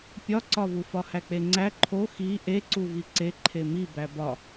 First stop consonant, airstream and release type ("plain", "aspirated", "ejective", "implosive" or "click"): plain